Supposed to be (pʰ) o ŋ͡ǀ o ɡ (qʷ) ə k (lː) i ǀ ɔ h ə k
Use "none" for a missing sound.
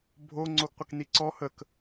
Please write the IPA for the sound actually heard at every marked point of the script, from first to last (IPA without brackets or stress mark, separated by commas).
bʱ, qʷ, n